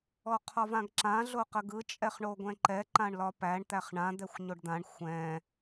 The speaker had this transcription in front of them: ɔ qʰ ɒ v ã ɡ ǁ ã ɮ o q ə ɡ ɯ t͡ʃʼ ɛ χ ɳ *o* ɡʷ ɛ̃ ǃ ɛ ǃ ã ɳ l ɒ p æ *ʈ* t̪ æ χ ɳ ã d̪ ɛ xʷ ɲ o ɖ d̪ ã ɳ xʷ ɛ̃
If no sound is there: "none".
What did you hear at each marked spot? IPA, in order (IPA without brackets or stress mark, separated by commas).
o, ɳ